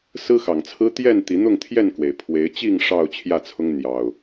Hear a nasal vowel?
no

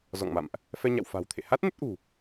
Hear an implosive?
no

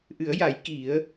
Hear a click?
no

